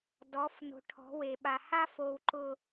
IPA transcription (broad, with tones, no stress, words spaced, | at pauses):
dɔ˨˦f no̤˨ʈʰɔ̤˨˦we˨ɓa˨ ha˦fo˨wǃʊ˨